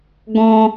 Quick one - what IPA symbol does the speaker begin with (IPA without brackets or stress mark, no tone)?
ɡ